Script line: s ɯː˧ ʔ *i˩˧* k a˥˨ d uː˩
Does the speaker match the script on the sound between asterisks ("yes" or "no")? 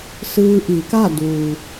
yes